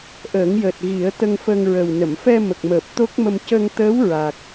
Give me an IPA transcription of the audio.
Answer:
ʔəː˨˩˦ŋjəː˨˩t̚ ɣi˨˩˦ə̯ t̪ə˧ŋfə˧ŋɹə˨˩w nə˨˩˨mfɛ˧mə˨˩k̚məː˨˩p̚ t̪o˦˥k̚mə˧m cə˧ŋt̪əː˧˥w ɹa˨˩k̚

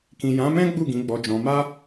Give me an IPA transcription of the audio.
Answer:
kĩ˨jã˨˦mɛ̃˦ ɡ͡bu˦˨ɡĩ˨˦ ɡ͡bɔ˧d͡ʒɔ̃˧ ma˦

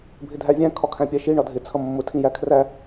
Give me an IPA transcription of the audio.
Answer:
bʱɪdʱævʲæ̃ kʰɒkʰæ̃pʲæʃi ɳɒdʱɪ t͡sʰʌmːʊ tʰĩjækʰræ

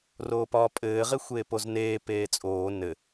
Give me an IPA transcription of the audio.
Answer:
roːpɒːpʼɘː ʁexʷeːpozneː peːt͡sʼoː nɘ

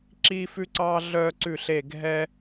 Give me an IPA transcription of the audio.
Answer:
ǁiː˦fʉ˦ǀɑː˦ ɮœː˦ǀʉ˦˨ɬe˦˨ ɡʱɛ˦

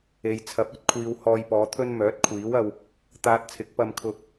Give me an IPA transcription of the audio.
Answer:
e˨jt͡sʰɐ˨˥p̚ ɵ˨˥t̚kʷʰiː˨w hɔː˧jpɔː˨˧t̪ʰɵ˥n mœː˨˥t̚kʷʰiː˨˥wɐ˧w | t̪aː˧t̚t͡sʰɪ˨˥k̚pɐ˧m kʰʊ˧k̚

